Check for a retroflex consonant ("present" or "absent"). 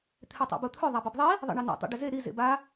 present